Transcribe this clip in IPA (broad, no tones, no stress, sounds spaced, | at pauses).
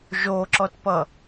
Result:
ʒ o ǁ ɔ t p ʌ